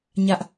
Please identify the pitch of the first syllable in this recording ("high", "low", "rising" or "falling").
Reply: high